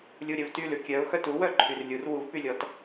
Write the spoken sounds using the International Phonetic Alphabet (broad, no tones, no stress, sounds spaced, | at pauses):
lʲ u ɾʲ œ v t y l ʉ kʲ œ ʊ̯ x œ t u w œ ǃʰ y r lʲ u r w u v p y lʲ ɔ t